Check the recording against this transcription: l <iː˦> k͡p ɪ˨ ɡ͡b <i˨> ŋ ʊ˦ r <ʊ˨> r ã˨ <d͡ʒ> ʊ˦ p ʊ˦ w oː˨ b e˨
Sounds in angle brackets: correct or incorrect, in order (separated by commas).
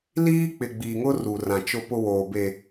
correct, correct, incorrect, incorrect